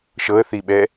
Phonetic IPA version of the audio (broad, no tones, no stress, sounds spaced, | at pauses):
ʃ ɤ ə̯ θ i ɓ ɛ